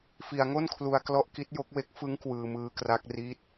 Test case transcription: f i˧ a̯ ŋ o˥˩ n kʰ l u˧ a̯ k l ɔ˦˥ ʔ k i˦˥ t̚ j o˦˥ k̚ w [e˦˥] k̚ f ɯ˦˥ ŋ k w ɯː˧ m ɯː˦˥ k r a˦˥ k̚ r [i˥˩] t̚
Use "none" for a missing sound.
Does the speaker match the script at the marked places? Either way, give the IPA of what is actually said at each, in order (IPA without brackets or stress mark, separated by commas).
e˦˥, i˦˥